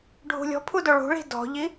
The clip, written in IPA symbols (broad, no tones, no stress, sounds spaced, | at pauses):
ɖʱ ṳ lʲ ɔ̤ pʰ u d o ɭ ṳ ɭ i̤ d ɔ̤ ʎ i